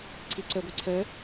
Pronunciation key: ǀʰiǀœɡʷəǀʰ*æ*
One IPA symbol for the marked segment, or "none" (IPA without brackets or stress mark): œ